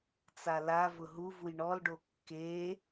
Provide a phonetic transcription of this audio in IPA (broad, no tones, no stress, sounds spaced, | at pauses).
t͡s a l a v ʊ ɦ u v u j ɳ ɔ l ɖ o kː e